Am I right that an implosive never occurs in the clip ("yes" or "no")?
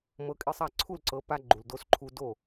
yes